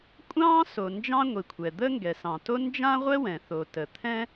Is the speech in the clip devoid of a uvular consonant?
no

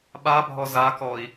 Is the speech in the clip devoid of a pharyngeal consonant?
yes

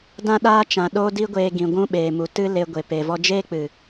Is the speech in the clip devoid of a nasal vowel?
no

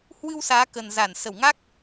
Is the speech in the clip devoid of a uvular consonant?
yes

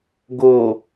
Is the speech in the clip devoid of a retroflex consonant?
yes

